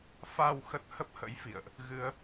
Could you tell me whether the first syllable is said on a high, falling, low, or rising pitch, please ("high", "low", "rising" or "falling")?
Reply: low